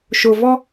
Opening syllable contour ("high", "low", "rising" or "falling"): low